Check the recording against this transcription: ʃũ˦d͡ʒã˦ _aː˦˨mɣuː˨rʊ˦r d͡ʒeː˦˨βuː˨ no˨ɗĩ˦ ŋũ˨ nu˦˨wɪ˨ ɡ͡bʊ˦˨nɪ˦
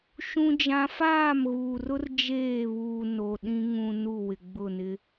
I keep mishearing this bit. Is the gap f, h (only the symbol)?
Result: f